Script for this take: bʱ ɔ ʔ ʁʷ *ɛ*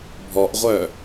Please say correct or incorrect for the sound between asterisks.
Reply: incorrect